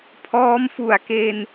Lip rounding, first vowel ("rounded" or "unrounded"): rounded